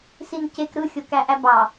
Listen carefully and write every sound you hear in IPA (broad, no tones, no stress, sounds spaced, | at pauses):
s i n c e k ɾ ɯ xʲ o k æ ʔ æ b ɑ